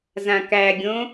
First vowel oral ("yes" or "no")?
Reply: no